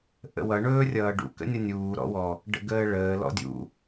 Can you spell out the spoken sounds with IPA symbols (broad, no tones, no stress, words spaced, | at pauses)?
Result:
ʔə̰wʌ ɳɵːrʲʌːɖṵ kə̰nʲʌnʲuː ɾɔ̰wɔ | ɖə̰ɡəːɭəː lɔ̰dʲṵ